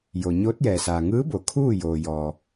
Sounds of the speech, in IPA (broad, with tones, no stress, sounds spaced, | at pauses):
j o˩ ɲ oː˧˥ t̚ j ɛː˩ s aː˩ ŋ ɯː˧˥ b o˩˧ kʰ uː˥˨ j oː˩ j ɔː˩